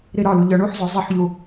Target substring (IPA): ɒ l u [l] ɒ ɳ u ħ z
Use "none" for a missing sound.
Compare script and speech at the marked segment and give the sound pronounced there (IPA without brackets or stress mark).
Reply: ʎ